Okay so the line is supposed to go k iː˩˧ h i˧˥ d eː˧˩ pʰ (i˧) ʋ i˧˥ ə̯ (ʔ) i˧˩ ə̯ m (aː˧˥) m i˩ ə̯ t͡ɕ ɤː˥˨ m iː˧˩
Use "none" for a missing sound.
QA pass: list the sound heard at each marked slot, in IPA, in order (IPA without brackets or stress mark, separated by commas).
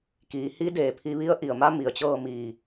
i˧, ʔ, a˧˥